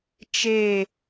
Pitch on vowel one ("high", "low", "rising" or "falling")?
falling